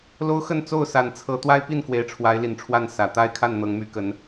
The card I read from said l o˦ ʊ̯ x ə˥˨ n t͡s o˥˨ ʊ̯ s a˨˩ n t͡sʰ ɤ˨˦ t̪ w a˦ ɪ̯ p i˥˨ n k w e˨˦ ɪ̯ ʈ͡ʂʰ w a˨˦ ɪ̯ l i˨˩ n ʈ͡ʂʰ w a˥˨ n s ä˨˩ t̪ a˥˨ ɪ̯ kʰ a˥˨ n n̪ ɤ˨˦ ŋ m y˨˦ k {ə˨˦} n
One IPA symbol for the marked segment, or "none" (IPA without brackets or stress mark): ə˨˦